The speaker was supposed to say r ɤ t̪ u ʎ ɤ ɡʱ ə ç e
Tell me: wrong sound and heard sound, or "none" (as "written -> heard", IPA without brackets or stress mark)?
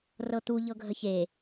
none